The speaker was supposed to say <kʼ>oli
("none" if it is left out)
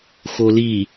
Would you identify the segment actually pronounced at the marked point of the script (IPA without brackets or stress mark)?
x